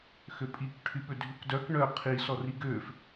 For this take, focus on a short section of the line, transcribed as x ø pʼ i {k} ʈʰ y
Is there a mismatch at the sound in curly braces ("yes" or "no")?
no